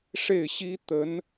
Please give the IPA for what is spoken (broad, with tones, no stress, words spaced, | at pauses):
ʂe˥˩ɪ̯ɕi˥ t̪ə˧˥n